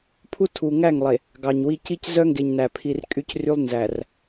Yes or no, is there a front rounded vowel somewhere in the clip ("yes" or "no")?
yes